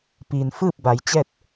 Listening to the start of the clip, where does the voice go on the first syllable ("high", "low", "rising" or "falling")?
low